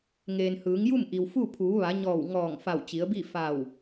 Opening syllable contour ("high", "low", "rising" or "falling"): low